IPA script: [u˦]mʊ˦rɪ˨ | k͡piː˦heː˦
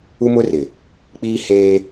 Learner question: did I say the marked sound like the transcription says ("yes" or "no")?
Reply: yes